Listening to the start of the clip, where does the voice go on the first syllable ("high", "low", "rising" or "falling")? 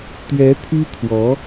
rising